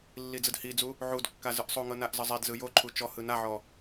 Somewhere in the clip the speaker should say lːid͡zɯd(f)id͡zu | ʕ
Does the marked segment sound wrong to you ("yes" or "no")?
yes